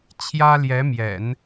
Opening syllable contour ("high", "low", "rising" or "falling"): high